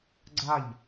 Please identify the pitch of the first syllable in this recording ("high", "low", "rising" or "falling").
falling